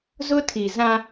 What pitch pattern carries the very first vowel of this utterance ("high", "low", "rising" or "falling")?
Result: high